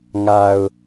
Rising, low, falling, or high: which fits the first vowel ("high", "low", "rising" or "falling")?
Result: low